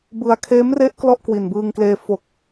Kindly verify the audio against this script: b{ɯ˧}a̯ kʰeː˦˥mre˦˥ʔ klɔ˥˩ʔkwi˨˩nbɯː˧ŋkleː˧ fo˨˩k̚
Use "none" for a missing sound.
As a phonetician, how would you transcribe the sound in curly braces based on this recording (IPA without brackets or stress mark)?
ɯ˧